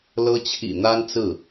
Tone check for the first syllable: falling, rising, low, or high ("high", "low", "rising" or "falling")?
high